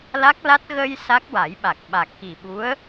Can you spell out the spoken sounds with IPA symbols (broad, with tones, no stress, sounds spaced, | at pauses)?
l a˦˥ k̚ l a˦˥ t̚ ɣ ə˧ j s a˦˥ k̚ w a˨˩˦ j ɓ a˨˩ k̚ ɓ a˨˩ k̚ x i˨˩ ɓ u˧˥ ə̯